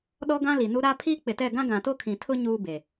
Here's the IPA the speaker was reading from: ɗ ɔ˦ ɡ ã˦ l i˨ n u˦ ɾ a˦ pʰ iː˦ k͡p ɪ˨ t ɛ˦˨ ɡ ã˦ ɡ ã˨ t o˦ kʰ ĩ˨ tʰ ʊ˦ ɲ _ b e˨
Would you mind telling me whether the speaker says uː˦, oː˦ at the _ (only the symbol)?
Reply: uː˦